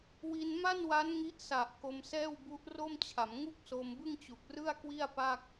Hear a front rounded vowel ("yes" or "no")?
no